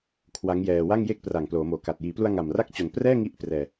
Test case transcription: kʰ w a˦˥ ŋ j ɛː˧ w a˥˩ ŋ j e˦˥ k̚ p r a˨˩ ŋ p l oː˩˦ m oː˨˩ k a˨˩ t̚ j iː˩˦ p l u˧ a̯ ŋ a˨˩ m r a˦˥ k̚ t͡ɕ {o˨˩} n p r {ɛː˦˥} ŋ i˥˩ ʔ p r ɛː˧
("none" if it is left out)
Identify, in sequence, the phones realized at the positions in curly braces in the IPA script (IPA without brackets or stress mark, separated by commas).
o˨˩, ɛː˥˩